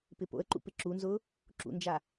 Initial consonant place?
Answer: labial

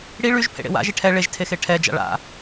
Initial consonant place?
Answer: retroflex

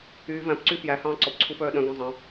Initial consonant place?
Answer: labial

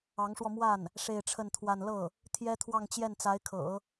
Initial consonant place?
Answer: velar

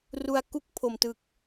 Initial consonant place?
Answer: alveolar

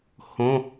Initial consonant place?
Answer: glottal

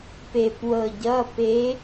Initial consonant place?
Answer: labial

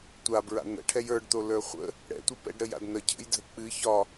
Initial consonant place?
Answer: alveolar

